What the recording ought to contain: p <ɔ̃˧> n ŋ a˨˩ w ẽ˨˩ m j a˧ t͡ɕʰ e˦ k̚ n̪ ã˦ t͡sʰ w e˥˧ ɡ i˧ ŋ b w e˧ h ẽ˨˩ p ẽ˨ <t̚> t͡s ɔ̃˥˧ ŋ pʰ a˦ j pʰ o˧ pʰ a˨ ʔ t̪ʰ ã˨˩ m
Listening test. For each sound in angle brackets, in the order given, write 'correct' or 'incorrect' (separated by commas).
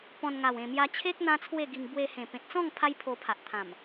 correct, correct